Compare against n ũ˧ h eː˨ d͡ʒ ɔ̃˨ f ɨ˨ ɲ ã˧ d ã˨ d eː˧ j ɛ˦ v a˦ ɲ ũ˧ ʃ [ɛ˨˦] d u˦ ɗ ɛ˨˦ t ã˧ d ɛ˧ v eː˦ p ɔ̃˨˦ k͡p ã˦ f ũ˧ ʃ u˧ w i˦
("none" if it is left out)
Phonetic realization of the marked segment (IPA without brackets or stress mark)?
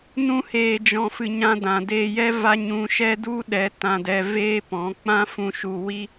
ɛ˦